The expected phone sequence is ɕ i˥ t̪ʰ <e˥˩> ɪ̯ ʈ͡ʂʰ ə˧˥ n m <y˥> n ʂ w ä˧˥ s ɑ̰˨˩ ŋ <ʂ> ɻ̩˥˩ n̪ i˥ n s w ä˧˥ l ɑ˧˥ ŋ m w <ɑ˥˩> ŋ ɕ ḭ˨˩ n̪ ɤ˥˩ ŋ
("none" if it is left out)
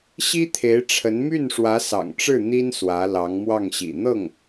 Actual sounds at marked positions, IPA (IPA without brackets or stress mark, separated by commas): e˧˥, y˥˩, ʈ͡ʂ, ɑ˥˩